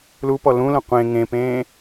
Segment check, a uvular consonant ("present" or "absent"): present